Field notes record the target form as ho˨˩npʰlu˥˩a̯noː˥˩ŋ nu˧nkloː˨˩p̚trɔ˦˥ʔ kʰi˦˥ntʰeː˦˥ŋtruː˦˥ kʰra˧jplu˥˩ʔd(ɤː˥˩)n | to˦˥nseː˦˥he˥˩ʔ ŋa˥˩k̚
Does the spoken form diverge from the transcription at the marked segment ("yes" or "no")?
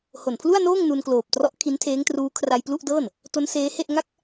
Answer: no